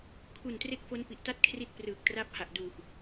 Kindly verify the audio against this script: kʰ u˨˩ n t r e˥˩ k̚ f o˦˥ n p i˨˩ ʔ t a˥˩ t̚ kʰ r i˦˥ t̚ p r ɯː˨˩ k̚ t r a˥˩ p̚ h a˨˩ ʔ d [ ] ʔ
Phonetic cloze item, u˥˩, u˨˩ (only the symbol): u˨˩